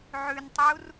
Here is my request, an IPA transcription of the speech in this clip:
ʕʉntˤur

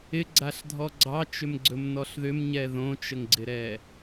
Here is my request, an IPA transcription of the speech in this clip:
ɪɡ͡ǀaɬdʱɔ ɡ͡ǀɑt͡ʃʏmɡ͡ǀɵmnɔɬ ðʏmɲɛ ðõt͡ʃəŋɡ͡ǀɪɾɛ

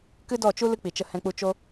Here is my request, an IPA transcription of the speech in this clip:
kɨ˦dɔ˦˨t͡ʃu˦ lɨ˦k͡pi˨t͡ʃə˧ hɛ̃˧k͡pu˧t͡ʃo˦

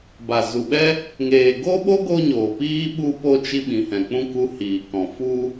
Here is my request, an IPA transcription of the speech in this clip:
ba˨zu˨ɓɛ˦ | ŋeː˨ɡo˦ɓo˦ ɡo˦ɲoː˨piː˦ ɓu˧po˧ t͡ʃi˦ɓĩ˨hɛ̃˨k͡pũ˦ ku˧hiː˨kɔ̃˨ fu˧

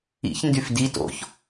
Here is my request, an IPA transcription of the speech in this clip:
ḭç ndyfdi to̰ç

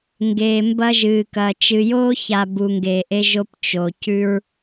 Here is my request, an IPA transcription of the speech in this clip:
ŋɡeː˨mbɐ˦ ʒɨ˨kɐː˨ t͡ʃɨ˨joː˦ça˨ bu˨ŋɡeː˨ʔe˦ʒo˦p t͡ʃo˨ cʉ˦ɹ

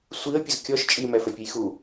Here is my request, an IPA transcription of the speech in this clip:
sʷiə̯pʲəz kʲɔʃ t͡ʃʼimɛfɛpʲuj xu

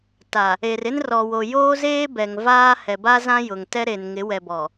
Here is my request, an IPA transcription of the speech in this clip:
ta˨ | e˨rɪ˦n rɔ˨wo˨ joː˦zeː˦ bɛ˨ŋvaː˦ hɛ˨ba˦zã˦ jʊ˨ŋtɛ˦ ɾe˨n ŋɪ˨˦wɛ˨bɔ˨

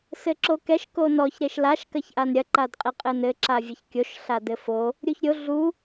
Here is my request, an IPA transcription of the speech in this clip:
sɘǁokɛʃ konɔç ɾeʃlaʃ kɐçʔanɾʲɐ ǃadqʼeqʼɘnɘ ǁavʲɘçkʲoʃ ɬadɘfo | ɾʲuçɾʲo ɮu

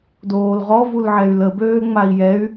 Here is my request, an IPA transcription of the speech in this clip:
doːlʁɔ vulʕɛy̯lə bøːŋ͡mai̯jɛy̯

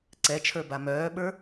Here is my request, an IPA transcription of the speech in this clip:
ǀɛt͡ʃʰə˞ba mœːɓə˞

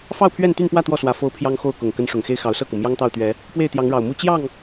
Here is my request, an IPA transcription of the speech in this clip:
fɑ˥˨ʊ̯pʰɥɛ˥˨nt̪y˥˨npwä˥˨ t̪wɔ˥˨swä˨˦ fo˦ʊ̯pʰjɑ˦ŋxo˥˨ʊ̯kʊ˨˩ŋ kə˨˦n ʂʊ˨˩ŋxe˦ɪ̯ xɑ˨˦ʊ̯sɤ˥˨ku˩ mjɑ˦ŋt̪ɑ˥˨ʊ̯ t̪ɥɛ˨˦ | pwe˥˨ɪ̯t̪jɑ˨˦ŋɻɑ˨˩ʊ̯mu˥˨ t͡ɕjɑ˥˨ŋ

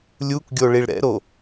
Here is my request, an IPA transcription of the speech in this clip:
lʲukɡʲo ɭiɭɾɛ̰ɾo

